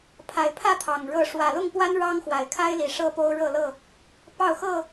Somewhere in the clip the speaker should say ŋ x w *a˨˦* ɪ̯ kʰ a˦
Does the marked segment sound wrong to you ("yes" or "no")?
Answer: yes